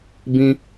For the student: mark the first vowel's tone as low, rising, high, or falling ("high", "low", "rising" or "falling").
high